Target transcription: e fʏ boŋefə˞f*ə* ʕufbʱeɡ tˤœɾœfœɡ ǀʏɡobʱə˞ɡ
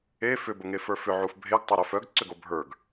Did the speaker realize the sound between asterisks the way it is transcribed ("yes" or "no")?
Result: no